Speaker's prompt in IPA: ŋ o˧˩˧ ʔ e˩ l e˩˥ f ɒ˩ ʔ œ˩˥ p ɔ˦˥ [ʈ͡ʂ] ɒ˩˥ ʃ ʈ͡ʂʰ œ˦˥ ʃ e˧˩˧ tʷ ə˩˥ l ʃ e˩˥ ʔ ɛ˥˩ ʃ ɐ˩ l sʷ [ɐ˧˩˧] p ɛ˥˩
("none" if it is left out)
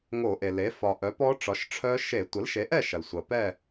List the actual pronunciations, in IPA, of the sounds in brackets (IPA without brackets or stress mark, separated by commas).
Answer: ʈ͡ʂ, ɐ˩